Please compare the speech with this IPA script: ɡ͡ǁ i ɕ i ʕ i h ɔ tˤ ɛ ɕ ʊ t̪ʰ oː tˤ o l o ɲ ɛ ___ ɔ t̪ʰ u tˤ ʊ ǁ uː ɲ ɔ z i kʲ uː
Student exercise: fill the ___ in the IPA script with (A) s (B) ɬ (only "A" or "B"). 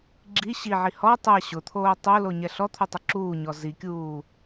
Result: B